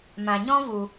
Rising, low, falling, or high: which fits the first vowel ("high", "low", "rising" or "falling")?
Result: low